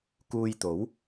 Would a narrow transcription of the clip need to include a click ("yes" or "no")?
no